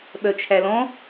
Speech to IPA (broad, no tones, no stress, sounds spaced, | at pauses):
ɓ œ t͡ʃʰ æ l ɔ̃